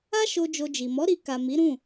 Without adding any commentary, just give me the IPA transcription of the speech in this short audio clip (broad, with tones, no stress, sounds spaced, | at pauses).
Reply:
a˦ ʃ o˧ d͡ʒ o˧ d͡ʒ i˨ m ɔ˨˦ ɾ i˧ k a˨ m i˨˦ ɾ ũ˦˨